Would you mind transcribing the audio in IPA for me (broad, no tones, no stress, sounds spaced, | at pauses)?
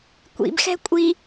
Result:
kʷ ḭ b x ɛ̤ kʷʼ i